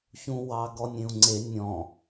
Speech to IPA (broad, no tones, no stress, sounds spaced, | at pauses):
ç ũ w ɑ ɡ ɔ nʲ ẽ u̯ ŋ͡ǀ e nʲ ɔ̃